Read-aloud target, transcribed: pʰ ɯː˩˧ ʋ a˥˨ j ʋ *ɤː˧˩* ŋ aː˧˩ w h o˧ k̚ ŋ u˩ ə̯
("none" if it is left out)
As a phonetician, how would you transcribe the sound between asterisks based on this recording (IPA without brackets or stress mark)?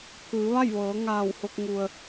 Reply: ɤː˩˧